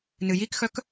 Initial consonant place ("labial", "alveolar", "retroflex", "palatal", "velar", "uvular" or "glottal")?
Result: alveolar